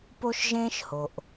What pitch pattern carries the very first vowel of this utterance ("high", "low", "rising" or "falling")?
high